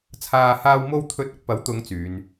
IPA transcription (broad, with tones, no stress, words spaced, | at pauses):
t͡sʰaː˨haː˧wmo˧wt̪ʰɵ˨˥t̚ ʊ˨˥k̚pɐ˨˥wt̪ʊ˨˧ŋ t͡syː˨˧n